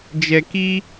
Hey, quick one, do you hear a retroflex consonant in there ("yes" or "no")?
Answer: no